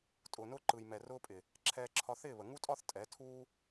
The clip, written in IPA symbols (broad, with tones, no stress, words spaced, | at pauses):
tʼʊː˨nʊː˧ǃɯ˨j mɛ˨ rʊː˦pʼɪ˨ | ǁʰɛː˧ǁʰɒ˧θɪː˦˨βə˨ ŋu˦tʼɒ˦θ tʼɛ˨˦tʰuː˦